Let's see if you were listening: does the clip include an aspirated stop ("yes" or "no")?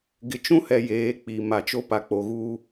no